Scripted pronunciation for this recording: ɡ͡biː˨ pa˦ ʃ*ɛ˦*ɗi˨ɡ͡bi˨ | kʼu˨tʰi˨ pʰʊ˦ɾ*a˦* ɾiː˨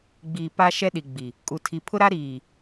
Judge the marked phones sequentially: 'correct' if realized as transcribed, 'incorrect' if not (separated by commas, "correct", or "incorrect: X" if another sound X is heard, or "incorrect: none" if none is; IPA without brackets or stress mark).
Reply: correct, correct